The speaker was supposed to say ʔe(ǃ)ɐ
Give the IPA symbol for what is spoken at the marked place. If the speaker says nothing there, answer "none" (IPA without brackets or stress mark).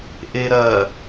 ɾ